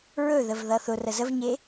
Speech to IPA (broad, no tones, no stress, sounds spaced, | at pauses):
ɹ ɵ ð ə v ð ʌ θ ʊ r ə z ə v ɲ e